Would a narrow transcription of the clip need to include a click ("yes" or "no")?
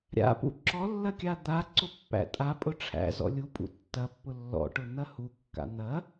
yes